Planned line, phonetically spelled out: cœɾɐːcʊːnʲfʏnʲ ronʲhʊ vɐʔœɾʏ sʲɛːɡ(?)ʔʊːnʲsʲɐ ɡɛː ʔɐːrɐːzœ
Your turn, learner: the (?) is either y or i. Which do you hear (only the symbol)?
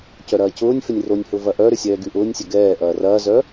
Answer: y